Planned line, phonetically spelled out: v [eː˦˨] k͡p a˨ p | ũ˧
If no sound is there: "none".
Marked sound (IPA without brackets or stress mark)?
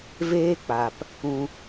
eː˦